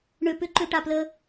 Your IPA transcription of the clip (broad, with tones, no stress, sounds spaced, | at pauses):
ɳ ø˨ p ʏ˧ ǃ ø˨ ʈ a˨ p l ə˧